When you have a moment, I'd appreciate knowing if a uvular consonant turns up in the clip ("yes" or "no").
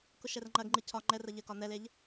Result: no